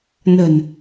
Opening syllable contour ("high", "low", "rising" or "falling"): low